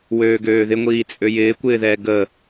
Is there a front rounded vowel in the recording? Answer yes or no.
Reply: yes